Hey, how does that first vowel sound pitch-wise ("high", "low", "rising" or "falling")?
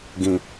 low